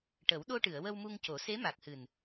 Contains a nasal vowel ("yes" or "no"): no